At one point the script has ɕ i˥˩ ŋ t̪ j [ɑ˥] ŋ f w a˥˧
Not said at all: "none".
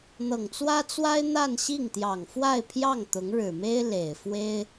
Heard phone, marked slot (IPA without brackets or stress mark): ɑ˨˩